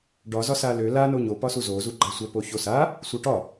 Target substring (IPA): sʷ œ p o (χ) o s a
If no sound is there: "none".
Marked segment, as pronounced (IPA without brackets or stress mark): ç